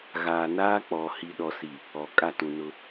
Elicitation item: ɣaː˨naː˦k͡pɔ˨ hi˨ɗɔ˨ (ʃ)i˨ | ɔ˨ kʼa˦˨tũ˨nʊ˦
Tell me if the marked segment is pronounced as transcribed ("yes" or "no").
no